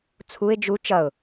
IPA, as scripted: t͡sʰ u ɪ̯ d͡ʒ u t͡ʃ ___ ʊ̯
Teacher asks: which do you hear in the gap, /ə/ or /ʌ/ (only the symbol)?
ʌ